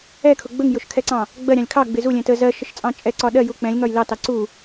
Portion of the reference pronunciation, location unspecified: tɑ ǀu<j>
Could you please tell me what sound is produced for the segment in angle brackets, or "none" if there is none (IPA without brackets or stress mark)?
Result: none